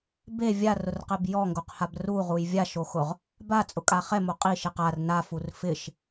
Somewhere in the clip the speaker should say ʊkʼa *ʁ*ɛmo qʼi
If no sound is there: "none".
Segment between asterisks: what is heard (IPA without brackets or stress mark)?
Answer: χ